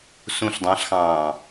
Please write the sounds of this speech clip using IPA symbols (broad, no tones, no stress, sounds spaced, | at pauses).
s ũ ɬ dˤ ɑ̃ ɬ x ɑ̃ː